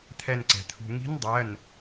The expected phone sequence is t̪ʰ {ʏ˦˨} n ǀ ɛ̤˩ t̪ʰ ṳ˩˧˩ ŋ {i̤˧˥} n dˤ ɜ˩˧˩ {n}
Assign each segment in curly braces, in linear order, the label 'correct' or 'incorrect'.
incorrect, correct, correct

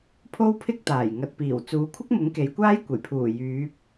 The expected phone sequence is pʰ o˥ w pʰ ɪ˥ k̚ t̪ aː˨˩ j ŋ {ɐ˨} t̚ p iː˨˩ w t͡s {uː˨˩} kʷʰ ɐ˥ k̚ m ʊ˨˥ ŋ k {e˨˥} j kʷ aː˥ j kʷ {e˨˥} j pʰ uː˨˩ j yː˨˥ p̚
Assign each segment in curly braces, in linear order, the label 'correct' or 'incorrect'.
correct, incorrect, incorrect, incorrect

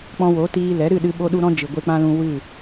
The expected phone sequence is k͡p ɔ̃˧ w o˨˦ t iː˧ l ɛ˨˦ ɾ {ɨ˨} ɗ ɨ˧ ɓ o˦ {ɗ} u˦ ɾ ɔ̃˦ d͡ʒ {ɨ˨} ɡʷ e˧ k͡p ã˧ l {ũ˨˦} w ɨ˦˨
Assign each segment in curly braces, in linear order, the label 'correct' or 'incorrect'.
incorrect, correct, correct, incorrect

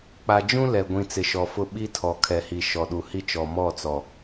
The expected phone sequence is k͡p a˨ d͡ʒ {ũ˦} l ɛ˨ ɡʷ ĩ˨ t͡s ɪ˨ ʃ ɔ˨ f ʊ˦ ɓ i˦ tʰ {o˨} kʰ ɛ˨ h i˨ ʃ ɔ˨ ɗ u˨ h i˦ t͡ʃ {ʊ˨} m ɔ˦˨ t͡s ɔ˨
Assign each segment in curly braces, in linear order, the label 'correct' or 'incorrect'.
correct, incorrect, incorrect

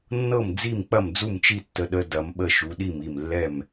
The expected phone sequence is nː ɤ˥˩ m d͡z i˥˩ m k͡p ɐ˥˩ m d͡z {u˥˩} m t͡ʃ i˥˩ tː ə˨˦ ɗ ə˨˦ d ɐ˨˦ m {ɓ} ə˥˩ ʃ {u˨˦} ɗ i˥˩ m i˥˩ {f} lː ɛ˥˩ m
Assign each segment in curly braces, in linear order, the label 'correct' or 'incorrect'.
correct, correct, correct, incorrect

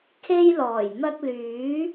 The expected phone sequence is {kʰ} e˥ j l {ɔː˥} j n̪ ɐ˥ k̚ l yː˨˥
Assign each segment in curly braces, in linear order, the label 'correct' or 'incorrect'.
correct, incorrect

